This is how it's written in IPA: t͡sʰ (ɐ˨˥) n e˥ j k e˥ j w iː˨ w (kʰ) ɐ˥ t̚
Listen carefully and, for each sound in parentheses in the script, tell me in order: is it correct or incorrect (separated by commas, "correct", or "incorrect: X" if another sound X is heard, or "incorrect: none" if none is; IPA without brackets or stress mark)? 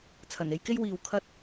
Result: incorrect: ɐ˨˩, correct